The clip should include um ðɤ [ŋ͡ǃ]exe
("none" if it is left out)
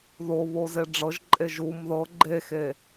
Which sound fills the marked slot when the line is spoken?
ɡ͡ǃ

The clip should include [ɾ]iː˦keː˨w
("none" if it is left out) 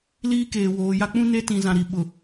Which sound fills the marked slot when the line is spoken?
l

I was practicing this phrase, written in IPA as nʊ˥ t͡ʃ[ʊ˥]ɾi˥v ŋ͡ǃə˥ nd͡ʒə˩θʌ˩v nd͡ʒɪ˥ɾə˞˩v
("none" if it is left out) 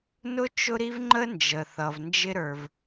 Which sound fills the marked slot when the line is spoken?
ʊ˥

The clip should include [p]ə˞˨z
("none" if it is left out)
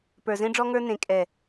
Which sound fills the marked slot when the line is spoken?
p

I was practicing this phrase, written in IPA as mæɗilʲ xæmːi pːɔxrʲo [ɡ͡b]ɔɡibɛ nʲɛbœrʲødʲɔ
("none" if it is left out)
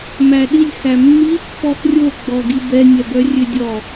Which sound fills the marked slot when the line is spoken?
ɡ͡b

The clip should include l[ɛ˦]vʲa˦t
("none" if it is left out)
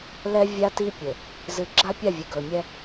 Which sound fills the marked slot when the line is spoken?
ɛ˦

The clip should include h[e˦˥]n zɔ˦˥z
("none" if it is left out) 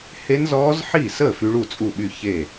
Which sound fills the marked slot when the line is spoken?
e˦˥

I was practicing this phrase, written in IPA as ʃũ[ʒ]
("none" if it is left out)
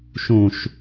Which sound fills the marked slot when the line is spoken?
ʃ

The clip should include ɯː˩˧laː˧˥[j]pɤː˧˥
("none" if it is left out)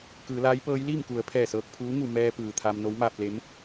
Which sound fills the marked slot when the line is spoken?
j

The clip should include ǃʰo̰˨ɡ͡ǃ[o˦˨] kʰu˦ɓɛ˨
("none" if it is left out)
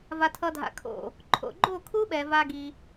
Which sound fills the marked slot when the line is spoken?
o˦˨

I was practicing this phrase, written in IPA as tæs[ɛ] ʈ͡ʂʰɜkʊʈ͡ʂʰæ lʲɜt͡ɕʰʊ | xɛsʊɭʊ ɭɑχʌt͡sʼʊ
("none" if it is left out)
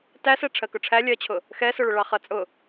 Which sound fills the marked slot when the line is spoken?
ɛ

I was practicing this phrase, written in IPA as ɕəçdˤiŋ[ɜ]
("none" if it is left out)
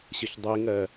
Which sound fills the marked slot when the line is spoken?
ɜ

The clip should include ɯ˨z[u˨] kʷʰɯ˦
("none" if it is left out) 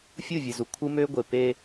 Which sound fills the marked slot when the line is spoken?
u˨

